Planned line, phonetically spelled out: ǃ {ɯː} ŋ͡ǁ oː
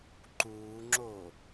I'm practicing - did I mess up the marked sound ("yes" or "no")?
yes